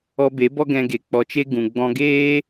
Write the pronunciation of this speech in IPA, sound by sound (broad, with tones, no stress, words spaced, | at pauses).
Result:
ɔ˧be˨˦ bɔ˦ɡɛ̃˧ɡe˨ k͡pɔ˧t͡ʃe˦ ɡũ˨ ɡ͡bɔ̃˧ɡeː˦